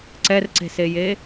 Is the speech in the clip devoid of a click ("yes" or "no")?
no